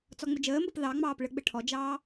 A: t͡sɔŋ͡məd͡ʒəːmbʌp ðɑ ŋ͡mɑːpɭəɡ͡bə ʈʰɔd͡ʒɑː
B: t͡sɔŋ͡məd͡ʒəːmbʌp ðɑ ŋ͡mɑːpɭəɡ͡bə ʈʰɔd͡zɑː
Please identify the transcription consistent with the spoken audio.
A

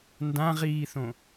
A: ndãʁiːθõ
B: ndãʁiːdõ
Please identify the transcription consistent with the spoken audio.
A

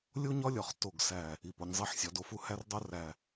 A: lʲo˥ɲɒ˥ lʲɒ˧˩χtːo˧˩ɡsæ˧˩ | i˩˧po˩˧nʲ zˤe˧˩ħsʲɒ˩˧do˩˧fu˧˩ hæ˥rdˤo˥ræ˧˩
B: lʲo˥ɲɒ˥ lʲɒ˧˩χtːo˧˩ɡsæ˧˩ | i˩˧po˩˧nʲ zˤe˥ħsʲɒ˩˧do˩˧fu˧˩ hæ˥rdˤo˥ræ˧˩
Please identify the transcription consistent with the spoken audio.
A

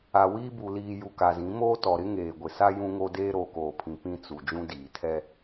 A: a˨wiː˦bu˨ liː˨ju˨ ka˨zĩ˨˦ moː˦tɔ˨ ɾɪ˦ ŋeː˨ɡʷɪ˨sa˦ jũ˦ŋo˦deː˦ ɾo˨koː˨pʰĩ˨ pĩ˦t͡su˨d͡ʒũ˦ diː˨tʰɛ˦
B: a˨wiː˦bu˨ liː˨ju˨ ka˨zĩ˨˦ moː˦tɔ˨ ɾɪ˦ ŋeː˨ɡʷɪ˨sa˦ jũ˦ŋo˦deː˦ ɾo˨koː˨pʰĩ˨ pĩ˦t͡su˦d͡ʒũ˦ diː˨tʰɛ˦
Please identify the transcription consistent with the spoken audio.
A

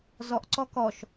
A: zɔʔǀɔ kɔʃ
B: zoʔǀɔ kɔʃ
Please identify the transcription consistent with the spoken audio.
A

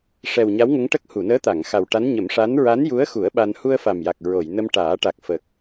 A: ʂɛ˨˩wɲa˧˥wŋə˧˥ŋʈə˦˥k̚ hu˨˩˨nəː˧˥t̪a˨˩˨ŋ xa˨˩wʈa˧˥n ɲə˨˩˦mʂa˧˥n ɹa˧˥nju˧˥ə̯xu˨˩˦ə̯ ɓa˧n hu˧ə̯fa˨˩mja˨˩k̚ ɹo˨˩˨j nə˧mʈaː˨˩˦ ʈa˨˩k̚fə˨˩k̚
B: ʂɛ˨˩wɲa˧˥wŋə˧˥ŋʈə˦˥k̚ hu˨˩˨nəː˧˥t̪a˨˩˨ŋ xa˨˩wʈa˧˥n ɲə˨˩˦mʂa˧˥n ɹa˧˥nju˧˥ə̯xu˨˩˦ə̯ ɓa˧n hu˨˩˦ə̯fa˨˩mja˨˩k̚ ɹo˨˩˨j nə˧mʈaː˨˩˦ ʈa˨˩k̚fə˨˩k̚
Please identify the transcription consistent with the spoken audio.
A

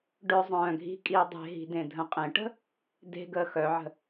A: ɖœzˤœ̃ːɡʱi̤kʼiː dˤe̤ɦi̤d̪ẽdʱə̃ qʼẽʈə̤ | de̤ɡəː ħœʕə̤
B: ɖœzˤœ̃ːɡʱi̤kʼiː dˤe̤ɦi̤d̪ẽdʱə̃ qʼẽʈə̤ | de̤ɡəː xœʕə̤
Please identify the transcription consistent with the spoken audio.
B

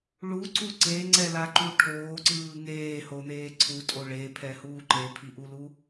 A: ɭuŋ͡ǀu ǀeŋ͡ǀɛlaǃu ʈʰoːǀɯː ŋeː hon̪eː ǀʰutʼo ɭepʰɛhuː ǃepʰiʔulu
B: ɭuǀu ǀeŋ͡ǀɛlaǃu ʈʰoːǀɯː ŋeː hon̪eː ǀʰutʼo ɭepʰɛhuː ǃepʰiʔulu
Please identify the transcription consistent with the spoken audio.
B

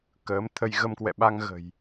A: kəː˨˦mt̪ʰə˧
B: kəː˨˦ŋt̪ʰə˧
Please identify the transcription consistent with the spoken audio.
A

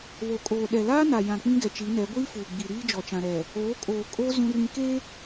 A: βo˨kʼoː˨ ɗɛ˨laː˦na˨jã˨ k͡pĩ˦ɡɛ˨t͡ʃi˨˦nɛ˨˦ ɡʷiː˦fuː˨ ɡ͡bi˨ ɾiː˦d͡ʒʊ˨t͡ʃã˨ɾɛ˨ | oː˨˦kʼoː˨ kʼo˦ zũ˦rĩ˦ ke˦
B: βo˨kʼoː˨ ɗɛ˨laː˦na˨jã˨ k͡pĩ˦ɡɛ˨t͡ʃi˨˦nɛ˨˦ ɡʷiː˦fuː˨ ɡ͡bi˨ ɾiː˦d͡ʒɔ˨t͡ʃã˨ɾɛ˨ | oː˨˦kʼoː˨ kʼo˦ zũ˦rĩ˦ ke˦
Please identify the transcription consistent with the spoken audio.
B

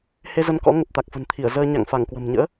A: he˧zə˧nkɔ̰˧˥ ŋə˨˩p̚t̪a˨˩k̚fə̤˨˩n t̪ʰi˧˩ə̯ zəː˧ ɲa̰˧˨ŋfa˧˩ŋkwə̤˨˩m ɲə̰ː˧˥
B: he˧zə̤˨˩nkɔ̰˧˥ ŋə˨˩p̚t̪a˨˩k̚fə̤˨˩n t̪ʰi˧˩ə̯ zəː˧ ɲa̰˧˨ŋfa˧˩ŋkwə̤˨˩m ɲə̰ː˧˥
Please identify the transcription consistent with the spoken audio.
A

